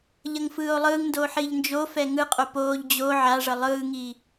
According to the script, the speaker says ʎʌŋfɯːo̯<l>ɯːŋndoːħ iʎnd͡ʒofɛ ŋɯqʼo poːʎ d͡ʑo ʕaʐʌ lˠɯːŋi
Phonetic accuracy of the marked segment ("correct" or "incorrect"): incorrect